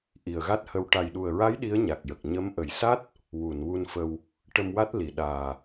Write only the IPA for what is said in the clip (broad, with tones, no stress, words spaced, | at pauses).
ʔi˨˩ə̯ɣa˦˥t̚hə˧w ʈa˨˩jɗu˨˩ə̯ɹa˧˥j ɗi˧˥ə̯ɲa˨˩k̚jə˨˩k̚ ɲə˧˥m ʔə˨˩jsa˦˥t̚ | wu˨˩˨nwu˧nfə˧w | ʈə˧mwa˦˥t̚ li˨˩ ɗaː˨˩